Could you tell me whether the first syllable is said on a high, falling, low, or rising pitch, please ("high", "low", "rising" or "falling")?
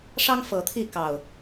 high